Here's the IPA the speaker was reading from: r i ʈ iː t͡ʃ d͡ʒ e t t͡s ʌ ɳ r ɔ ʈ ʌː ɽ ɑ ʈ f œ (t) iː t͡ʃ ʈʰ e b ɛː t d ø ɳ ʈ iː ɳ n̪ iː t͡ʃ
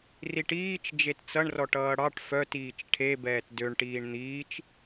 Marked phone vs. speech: correct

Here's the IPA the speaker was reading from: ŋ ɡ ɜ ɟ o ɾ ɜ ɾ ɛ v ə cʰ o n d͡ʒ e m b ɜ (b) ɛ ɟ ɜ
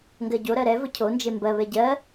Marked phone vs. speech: incorrect: β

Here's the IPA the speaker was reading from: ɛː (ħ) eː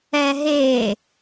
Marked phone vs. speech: incorrect: ɦ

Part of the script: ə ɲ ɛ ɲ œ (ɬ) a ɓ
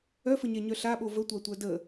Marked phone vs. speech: correct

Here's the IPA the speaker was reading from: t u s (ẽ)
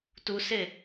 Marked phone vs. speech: incorrect: e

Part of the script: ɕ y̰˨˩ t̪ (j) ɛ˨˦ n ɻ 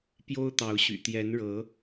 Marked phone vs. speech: correct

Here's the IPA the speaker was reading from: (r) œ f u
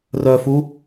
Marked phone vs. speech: correct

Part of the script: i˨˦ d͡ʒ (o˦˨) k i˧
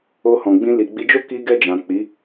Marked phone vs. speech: incorrect: o˦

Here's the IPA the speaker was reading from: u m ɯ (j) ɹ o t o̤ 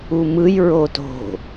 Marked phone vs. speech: correct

